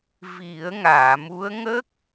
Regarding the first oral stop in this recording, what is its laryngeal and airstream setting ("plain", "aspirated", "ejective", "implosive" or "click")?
plain